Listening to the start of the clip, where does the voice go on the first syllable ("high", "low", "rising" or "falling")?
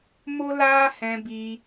high